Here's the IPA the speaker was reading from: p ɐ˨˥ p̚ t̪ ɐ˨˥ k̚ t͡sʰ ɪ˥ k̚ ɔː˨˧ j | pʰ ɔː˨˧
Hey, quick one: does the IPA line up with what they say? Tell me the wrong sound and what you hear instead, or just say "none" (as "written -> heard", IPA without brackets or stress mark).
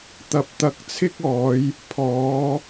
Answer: p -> t̪